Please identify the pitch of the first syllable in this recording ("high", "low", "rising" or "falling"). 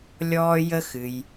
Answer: high